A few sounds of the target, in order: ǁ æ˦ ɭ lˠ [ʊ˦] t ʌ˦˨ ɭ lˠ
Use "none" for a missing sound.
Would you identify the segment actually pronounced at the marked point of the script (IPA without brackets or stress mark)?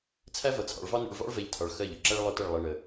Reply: ʊ˦